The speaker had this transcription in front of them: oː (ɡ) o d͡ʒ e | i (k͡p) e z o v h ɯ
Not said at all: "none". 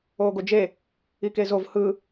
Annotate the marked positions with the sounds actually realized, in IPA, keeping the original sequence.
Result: ɡ, k

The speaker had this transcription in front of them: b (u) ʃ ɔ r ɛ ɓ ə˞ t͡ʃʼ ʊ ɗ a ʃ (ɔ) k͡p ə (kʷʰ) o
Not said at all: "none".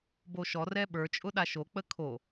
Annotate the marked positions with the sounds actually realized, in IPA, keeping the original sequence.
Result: o, o, kʰ

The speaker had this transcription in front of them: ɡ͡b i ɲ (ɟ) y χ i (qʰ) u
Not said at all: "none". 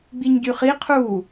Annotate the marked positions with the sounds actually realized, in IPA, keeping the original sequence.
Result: ɟ, qʰ

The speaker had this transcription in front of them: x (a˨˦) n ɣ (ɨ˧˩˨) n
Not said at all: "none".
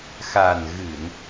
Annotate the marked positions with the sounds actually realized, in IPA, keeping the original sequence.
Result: a˨˩, ɨ˧˩˨

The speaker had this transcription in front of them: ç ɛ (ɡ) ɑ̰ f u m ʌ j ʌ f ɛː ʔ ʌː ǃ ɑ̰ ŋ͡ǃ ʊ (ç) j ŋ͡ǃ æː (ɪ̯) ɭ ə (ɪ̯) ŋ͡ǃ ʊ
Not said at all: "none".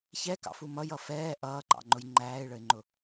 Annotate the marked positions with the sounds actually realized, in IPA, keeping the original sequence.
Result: k, none, ɪ̯, ɪ̯

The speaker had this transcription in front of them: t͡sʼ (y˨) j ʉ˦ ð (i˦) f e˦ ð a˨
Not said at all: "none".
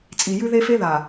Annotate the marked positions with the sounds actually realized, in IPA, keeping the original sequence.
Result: i˨, e˦

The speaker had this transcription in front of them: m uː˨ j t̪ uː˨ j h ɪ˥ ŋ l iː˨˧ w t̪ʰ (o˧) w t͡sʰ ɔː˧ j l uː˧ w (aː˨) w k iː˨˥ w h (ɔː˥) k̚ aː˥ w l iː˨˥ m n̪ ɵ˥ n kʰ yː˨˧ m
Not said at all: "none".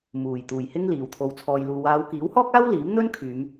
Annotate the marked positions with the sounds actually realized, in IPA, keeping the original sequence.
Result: o˧, aː˨˧, ɔː˥

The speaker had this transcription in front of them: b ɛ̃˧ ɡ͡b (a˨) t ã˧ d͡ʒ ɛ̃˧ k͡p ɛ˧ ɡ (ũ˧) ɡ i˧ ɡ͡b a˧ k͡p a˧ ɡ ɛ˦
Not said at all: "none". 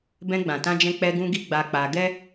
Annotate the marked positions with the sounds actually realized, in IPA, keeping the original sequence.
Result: ã˨, ũ˧

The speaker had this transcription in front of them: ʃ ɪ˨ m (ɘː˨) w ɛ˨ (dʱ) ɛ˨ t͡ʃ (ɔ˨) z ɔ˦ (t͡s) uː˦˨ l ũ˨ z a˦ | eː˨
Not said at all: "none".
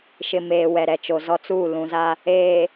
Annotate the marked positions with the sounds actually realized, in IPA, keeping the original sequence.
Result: eː˨, ɾ, o˨, t͡s

